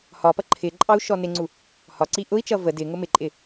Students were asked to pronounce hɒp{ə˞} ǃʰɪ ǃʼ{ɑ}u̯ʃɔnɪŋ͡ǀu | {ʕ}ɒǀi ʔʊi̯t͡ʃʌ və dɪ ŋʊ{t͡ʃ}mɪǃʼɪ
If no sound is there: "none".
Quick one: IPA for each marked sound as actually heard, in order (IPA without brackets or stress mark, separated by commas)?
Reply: ʌ, ɑ, h, none